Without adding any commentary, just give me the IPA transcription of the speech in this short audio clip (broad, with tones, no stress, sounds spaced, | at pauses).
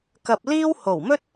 k ɐ˧ p̚ l iː˥ w h o˨˩ w m ɵ˥ t̚